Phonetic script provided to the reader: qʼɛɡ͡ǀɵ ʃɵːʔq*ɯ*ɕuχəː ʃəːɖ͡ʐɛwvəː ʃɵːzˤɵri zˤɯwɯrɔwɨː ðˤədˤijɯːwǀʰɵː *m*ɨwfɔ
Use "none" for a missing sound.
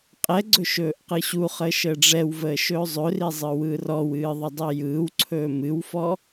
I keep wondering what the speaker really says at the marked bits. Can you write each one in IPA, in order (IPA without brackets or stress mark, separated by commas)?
ɯ, m